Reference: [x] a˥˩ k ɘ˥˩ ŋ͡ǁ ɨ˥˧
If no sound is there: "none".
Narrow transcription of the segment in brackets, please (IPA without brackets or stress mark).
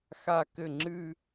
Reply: x